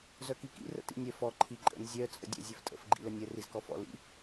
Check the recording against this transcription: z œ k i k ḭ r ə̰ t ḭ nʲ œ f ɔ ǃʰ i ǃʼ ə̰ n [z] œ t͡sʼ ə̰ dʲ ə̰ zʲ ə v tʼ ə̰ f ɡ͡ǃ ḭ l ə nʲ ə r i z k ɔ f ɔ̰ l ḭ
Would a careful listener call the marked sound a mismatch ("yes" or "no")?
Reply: yes